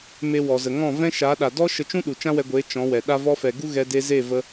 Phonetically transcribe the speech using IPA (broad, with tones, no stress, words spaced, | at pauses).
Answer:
me˧wɔ˨ zə˨ŋɔ̃˦˨vɛ̃˦ʃa˨˦ ɗa˨dɔ˦ ʃə˧t͡ʃũ˦ ɗu˨t͡ʃã˦wɛ˧ɡʷe˨˦ t͡ʃɔ̃˨˦wɛ˨ ɗa˦ vɔ˧fɛ˨ɡu˦ ɣɛ˧de˧ze˦˨ və˦